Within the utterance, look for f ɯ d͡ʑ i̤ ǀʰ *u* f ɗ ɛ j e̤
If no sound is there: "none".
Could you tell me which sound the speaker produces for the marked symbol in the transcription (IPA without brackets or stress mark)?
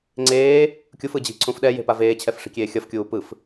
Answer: ũ